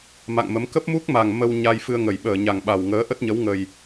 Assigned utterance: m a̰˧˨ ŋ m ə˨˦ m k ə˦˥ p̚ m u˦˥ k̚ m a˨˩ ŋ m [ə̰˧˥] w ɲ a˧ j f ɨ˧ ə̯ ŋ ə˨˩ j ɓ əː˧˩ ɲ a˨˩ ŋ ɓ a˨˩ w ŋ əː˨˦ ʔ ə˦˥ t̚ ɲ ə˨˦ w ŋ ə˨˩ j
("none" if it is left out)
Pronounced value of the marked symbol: ə˧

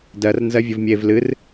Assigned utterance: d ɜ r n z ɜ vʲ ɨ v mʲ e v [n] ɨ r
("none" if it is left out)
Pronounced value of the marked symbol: l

